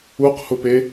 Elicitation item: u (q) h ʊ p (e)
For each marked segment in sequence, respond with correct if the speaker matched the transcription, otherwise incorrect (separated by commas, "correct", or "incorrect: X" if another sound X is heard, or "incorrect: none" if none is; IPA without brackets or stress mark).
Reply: correct, correct